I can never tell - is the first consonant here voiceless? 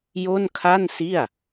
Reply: no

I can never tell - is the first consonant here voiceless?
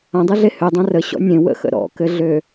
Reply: no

